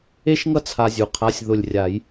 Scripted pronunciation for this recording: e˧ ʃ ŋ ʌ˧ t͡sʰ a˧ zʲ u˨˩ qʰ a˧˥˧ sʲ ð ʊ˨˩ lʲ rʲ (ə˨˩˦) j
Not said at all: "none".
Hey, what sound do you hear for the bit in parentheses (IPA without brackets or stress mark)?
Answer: a˨˩˦